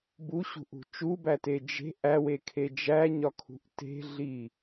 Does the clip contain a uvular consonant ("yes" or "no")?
no